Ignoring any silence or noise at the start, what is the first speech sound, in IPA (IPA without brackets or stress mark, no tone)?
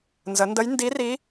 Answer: n